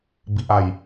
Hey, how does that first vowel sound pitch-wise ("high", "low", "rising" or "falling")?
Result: low